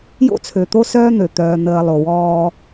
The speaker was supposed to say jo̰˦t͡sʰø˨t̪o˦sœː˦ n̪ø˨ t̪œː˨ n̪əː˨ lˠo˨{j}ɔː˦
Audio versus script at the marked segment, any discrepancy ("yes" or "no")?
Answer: yes